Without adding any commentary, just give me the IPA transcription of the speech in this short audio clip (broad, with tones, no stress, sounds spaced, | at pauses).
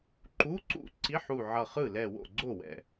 ǃ u˧˥˧ ǀ ṵ˥˩ ǀ i˧˥˧ ħ u˧˩ ʕ ʌ˧˩ χ ɯ˥˩ l ɛ˧˩ w o̰˥˩ ɡ͡ǀ o˥˩ w ɛ̰˥˩